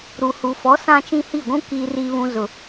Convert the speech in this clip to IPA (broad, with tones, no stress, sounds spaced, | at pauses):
ɾ u˨ h u˨ f ɔ˨˦ s ã˦ t͡ʃ ĩ˦ h i˦˨ ɡʷ ũ˦ k iː˨ r i˨ β ũ˨ z ʊ˨